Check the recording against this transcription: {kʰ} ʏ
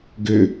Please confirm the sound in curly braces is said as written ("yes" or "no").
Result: no